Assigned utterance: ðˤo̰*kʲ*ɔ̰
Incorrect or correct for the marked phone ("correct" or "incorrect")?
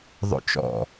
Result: incorrect